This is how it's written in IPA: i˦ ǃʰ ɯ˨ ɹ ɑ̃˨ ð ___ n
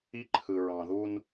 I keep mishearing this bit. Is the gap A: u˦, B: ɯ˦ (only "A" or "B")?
A